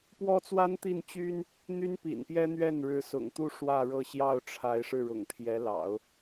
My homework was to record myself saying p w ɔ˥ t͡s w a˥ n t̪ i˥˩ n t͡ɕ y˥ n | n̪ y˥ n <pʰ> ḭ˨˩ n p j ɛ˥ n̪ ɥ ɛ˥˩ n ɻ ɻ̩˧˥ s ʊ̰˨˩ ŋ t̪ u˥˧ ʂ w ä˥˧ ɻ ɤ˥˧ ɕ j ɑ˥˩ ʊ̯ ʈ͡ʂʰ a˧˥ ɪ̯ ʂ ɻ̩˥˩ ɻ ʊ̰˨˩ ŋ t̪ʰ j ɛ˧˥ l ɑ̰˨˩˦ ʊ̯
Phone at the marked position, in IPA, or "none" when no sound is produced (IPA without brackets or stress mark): p